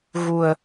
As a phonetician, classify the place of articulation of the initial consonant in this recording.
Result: velar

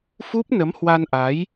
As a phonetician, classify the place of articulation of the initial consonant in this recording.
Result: labial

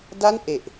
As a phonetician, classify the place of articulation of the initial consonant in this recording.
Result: alveolar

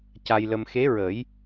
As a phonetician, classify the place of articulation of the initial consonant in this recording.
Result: palatal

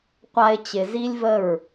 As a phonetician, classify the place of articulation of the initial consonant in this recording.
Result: uvular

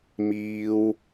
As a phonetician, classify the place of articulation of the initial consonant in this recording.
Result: labial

